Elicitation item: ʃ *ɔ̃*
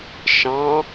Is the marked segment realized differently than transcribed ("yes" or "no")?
yes